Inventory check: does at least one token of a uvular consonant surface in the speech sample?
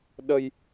no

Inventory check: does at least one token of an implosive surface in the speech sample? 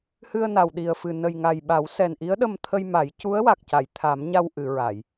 yes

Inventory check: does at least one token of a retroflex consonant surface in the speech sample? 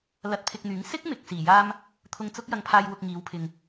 no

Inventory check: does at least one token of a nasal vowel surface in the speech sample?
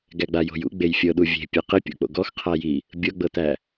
no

